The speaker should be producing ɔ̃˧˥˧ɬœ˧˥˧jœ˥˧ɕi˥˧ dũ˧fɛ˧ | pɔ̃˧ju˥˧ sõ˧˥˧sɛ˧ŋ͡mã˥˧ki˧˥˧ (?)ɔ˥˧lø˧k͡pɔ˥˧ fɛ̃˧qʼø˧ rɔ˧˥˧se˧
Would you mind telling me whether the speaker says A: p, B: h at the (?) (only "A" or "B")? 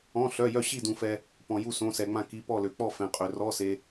A